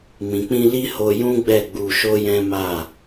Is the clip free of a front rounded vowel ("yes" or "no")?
yes